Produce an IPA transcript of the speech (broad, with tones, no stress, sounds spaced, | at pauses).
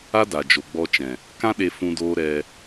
a˦ d a˨ d͡ʒ o˨ ɡ͡b ɔ˧ t͡ʃ ɛ̃˨ | k ã˦ ɗ e˧ f ũ˧ d oː˧ ɾ ɛ˧